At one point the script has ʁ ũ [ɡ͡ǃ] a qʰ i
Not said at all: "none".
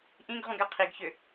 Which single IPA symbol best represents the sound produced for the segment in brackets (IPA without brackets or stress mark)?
ɡ